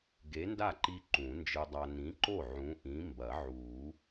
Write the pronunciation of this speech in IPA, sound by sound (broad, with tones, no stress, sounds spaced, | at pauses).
ɡ e˨˥ n d a˥˩ ǃ i˧ ǃ ũ˨˩˦ n d͡ʒ ɨ˧ dˤ a˧ n ĩ˨˥ ǃ o˥˩ ʕ ũ˨˥ ʔ ĩ˨˥ m b ɐ˨˩˦ ʕ uː˨˩˦